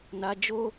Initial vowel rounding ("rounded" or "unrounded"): unrounded